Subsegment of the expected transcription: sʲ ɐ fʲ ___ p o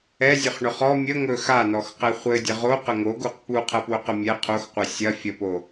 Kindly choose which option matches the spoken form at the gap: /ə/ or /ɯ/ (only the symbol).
ə